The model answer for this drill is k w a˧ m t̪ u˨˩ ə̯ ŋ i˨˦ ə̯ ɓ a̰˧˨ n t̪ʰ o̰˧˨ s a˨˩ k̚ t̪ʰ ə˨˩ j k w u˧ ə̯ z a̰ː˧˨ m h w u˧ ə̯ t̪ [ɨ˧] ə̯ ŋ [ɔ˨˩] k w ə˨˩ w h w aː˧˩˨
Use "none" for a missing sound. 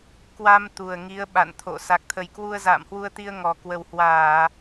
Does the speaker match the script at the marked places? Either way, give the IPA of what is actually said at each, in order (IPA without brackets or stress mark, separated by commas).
i˧, ɔ˨˩